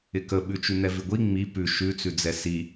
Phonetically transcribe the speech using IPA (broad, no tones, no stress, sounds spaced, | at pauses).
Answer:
ɪ k ə ɓ ʉ t͡ʃ ʉ n̪ ɛ v ɪ ɡʷ i ŋ͡m i p ʉ ʃ ʉ t͡s ʉ d͡z ɛ s i